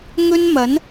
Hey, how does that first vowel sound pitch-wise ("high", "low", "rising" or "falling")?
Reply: high